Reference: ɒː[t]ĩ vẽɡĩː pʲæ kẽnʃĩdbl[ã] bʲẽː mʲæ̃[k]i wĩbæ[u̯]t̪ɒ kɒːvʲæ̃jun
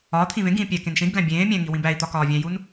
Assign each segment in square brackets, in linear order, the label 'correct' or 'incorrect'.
incorrect, incorrect, incorrect, incorrect

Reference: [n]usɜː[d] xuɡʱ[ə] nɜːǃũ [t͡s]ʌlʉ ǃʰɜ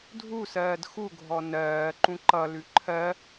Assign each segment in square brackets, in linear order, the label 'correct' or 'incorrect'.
incorrect, correct, incorrect, incorrect

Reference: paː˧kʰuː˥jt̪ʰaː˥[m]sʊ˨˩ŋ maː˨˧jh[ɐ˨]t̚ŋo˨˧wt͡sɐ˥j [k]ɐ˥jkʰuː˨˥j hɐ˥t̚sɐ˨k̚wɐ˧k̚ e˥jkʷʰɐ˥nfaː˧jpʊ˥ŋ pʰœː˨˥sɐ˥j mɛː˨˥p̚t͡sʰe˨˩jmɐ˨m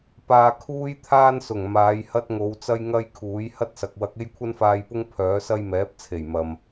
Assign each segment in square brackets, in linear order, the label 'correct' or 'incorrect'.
incorrect, incorrect, incorrect

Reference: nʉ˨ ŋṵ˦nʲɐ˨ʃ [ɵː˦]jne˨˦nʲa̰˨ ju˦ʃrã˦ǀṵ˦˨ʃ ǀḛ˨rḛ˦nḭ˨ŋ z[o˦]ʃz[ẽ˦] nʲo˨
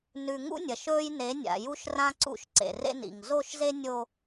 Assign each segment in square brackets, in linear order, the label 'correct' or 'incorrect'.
correct, incorrect, incorrect

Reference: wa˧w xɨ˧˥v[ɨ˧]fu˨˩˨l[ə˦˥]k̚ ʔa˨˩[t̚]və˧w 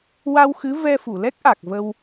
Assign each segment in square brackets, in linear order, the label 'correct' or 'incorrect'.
incorrect, incorrect, incorrect

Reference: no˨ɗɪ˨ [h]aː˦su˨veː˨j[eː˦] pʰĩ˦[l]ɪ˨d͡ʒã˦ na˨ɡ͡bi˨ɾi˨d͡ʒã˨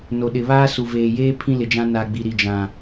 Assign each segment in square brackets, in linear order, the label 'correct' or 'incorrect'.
incorrect, correct, correct

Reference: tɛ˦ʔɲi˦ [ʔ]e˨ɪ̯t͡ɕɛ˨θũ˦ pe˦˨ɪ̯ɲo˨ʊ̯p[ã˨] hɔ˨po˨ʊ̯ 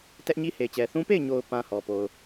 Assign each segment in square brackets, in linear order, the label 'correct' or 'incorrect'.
incorrect, correct

